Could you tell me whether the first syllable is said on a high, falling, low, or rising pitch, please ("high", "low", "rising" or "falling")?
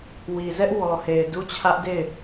low